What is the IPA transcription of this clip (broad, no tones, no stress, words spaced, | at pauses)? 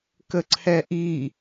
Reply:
kəǀʰɛʔi